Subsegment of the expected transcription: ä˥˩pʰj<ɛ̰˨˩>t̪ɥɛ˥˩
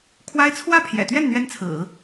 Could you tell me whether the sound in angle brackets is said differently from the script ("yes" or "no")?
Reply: no